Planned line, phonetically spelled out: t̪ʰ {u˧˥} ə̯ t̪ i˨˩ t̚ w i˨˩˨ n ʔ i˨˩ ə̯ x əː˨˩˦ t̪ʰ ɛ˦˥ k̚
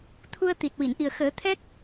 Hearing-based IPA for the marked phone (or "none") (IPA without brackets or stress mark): u˧